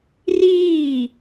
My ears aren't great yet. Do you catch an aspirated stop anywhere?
no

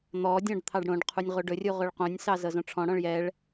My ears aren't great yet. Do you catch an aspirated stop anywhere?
yes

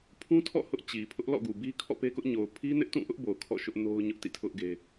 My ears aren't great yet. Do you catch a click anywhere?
no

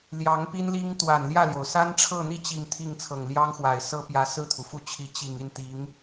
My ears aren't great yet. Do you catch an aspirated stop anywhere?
yes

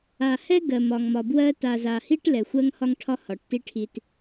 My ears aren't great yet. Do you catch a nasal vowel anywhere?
no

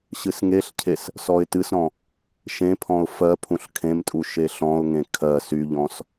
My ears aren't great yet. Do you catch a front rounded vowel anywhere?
yes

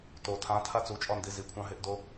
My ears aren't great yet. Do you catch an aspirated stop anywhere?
yes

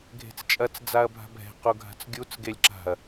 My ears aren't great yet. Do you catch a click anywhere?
yes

